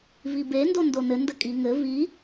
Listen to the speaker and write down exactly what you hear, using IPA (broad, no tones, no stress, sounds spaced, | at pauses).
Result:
v i b e n d o n d o n ɘ n d ə kʼ i ŋ ɘ v i